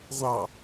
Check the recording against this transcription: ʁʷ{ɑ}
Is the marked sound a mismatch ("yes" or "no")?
no